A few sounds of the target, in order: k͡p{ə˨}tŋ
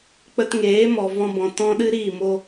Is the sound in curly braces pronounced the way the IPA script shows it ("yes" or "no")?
no